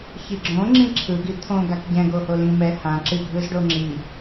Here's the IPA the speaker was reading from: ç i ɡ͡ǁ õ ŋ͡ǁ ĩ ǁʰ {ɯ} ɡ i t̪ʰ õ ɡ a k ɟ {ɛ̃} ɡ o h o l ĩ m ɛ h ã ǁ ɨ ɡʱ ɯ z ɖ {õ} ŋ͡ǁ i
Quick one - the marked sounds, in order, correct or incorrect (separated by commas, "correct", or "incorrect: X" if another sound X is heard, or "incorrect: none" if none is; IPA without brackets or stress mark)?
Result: correct, correct, incorrect: o